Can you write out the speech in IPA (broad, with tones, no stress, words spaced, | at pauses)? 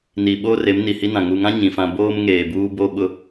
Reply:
ni˨ ɓoː˦re˨˦m ni˨hi˦nã˨ ŋu˨ŋã˦ ɲĩ˨fã˦ boː˦mŋeː˨buː˦ bo˦ɓʊ˦